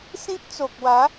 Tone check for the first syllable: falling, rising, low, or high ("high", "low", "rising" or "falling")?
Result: high